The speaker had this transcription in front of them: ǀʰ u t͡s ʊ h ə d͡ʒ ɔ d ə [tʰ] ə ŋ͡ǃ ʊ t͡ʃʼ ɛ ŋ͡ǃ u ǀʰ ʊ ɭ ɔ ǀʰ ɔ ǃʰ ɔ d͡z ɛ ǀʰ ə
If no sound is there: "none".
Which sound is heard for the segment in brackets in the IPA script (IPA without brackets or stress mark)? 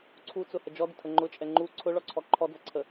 tʰ